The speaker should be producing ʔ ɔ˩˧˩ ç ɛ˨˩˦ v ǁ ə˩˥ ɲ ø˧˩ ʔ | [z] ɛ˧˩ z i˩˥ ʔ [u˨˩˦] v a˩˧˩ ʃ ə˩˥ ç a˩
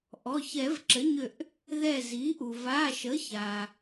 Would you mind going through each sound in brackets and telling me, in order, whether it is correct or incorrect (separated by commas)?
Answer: incorrect, incorrect